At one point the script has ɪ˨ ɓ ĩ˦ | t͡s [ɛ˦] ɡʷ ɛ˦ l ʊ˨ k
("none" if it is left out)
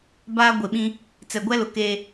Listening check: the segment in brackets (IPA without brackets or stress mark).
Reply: ɛ˨